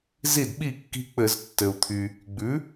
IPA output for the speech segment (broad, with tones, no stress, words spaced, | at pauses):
zi˥˩d ɓi˥˩kːi̤˦ k͡pɘ˧˩˧ztːɘ˩u̯t̪ʰy˩ | ɡ͡bʉ˩˥